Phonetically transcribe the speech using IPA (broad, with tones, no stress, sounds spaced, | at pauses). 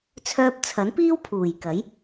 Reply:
t͡sʰ œː˧ p̚ t͡sʰ ɐ˨˥ n p iː˥ w pʰ uː˨˩ j k ɐ˨˥ j